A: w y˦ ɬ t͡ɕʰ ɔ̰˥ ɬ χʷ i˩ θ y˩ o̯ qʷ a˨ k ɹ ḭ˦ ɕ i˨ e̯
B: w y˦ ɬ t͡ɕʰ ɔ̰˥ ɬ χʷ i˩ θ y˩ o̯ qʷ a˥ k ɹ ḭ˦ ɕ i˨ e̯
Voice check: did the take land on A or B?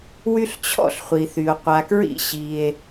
A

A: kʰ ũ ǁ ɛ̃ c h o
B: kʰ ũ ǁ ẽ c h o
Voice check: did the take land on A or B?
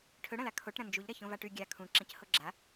B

